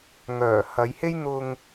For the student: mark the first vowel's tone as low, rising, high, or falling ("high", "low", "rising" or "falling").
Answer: low